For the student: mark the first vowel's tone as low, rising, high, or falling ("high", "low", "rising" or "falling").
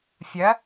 rising